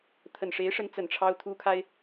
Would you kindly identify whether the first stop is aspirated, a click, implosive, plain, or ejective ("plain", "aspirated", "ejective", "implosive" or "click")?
aspirated